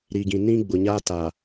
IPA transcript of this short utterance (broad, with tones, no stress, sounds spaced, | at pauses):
ɾ i˨ ɡ ĩ˨ n ĩ˦ ɡ͡b ʊ˨ ɲ a˦ t a˨